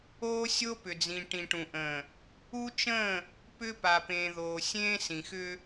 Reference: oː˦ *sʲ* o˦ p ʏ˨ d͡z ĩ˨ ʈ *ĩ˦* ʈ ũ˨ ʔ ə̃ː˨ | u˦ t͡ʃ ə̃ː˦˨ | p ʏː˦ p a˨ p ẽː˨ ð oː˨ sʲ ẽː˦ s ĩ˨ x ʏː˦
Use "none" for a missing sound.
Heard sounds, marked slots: sʲ, ĩ˨

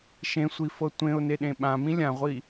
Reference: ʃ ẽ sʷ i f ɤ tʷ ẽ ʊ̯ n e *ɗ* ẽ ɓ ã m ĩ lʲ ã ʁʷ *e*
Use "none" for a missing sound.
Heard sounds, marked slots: ɗ, i

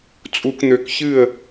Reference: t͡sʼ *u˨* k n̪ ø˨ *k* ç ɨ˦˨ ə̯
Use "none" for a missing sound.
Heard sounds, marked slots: u˨, k

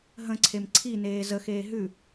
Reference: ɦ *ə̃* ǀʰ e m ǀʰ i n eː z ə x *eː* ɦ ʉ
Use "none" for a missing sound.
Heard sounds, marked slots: ə̃, eː

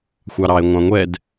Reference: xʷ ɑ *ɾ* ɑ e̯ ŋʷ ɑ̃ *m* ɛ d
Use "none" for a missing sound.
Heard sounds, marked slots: ɾ, ŋʷ

